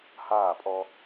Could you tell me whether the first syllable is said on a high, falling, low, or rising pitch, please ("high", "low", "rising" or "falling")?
falling